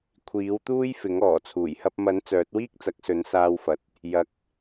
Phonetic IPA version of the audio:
kʷʰiː˨˥wt̪uː˥jfɪ˨˥ŋ ɔː˨˩t͡sʰuː˨˩jhɐ˧p̚ mɐ˨˥n t͡sœː˨˥t̚wiː˥k̚t͡sɐ˨˥k̚ sɵ˨˥nsaː˧wfɐ˨t̚ | jɐ˨k̚

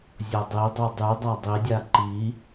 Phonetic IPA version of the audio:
zʲɔdˤidˤu dˤy dˤadˤidʲa ǃi

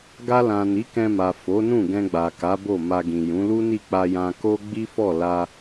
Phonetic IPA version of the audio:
ɡa˧lã˨ ni˨˦kɛ̃˧ma˨ fo˨˦nũ˦˨ɡɛ̃˧ ɡ͡ba˨ka˨˦bo˦˨ ma˧ɡĩ˨ jũ˨˦lu˦ni˦˨ k͡pa˧jã˧ko˦ ɡ͡bi˦fɔ˦˨ la˧

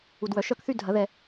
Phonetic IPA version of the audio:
u˨dwœ˨ ʃœ˥˧kθy˥˧ dʱɐ˨˩˦ðɛ˨

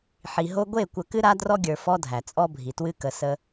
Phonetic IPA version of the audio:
ħi˨ɦo˦ ɡʷe˦˨kʷə˨kɨ˦ ɾa˦ drɔ˦ɡʲə˞˨ fɔ˦dʱæ˨t͡sʼɔ˦bʱi˨ twɨ˦kə˨ sə˦

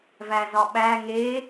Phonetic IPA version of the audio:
væzɒɓæ ŋe

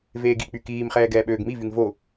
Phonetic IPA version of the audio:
veːɡik͡py kiːmχɛː ɡɛːɓøːɡmivyŋ vo

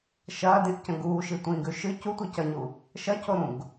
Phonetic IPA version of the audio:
ʃɐːdĩʔcɐ̃ ɡuːʃitʷĩːɡʉ ʃɨ cutʷi cɐɲu | ʃɐcoɾũɡ

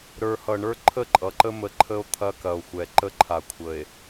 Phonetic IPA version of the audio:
ɾə˞˨hʌ˨ɳə˞˦ ǃʰə˦˨ǃʼʌ˨ǃə˦ mə˨ ǃʰə˦o̯ t̪ʰɐ˦kɐ˨o̯xʷɛ˨ ǃə˦ǃʰa˨kʷʰə˨e̯

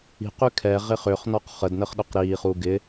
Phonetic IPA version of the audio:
i̤q ykʰɛ ʁɪχʏχnɔq χədnəχɗʊq ɾiːχu ɡɪ

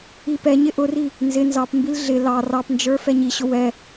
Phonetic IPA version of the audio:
ipɛɲɪ ʔʊri | nzɪ nzɑpmbil ɮɪ lɑ rɑpnd͡ʒə˞ fɛɲiɕʊ wɛ

